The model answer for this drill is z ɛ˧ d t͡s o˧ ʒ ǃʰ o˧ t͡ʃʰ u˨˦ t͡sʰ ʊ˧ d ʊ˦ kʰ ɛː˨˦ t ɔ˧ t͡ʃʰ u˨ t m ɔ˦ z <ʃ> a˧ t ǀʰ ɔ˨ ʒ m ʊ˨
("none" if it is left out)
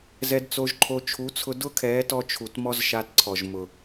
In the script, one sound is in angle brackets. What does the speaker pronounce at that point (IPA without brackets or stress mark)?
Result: ʃ